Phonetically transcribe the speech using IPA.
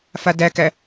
f a d æ k æ

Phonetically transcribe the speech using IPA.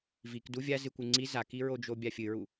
v i k d u vʲ a z ɨ kʷ ɨ ŋ͡ǀ i z a k i ɹ o d͡ʒ o bʲ a fʲ ɨ ɹ u

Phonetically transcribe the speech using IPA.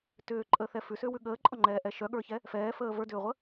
t ʏː ǃʼ əː θ ɛ f ʉ s ʏː w ʉ ɠ əː ǃʼ ɔ ŋ͡ǃ ɛː ʔ ɛ ʃ œ ɠ ə˞ ç ɛ | f ɛː f əː v ə˞ d ʏː ʁʷ ə

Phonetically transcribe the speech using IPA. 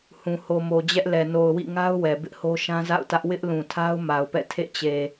h ũ˨ h o˨ m o˨ d͡ʑ ɛ˦ ʔ l ɛ˨ n o˨ ʊ̯ w ḭ˦˨ ŋ a˦ ʊ̯ w ɛ˨ b ɪ˦ ʔ h o˦ ʃ ã˦ z a̰˦˨ ʊ̯ t ä˦ ʔ w ɪ˦ ʔ l ũ˨ tʰ a˦ ʊ̯ m a˨ ʊ̯ p ɛ̰˦˨ tʰ ḛ˦˨ t͡ɕ e˨

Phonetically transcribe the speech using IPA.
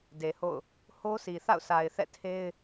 d e˨ h o̰˦˨ ʊ̯ | h o˦ s i˨ θ a̰˦˨ ʊ̯ sʰ a˨ ɪ̯ θ ɛ̰˦˨ tʰ e˦ ɪ̯

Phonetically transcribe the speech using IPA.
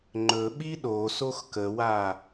ŋ͡ǃ ɵ ɓ i ɗ o s o x k ə w a

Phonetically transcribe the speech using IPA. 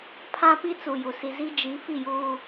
pʰ ã˦ p i˦ t͡s u˨ j u˨ s i˨ z i˦ d͡ʒ i˨˦ f i˦˨ j uː˦

